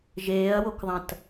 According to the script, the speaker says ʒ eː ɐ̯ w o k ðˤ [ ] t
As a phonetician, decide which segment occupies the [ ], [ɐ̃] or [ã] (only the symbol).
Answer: ɐ̃